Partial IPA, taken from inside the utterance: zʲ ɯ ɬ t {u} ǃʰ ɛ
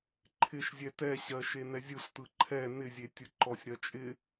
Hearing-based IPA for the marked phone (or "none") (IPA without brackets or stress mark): ɯ